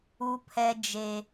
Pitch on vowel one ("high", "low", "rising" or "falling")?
high